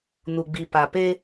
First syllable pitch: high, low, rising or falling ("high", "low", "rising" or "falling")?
low